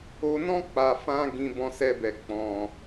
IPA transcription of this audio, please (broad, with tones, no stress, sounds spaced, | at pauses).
o˧ n ɔ̃˦ k͡p a˧ f ã˦ ɡ ĩ˧ b ɔ̃˧ s ɛ˧ b ɛ˨ k͡p ɔ̃˨